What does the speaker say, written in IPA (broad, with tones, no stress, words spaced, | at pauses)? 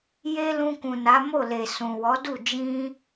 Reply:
je˦lũ˧kũ˨ na˨˦mo˦˨le˨ sũ˨wɔ˨˦du˦˨ d͡ʒĩ˧